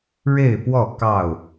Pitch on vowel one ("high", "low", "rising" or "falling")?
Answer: falling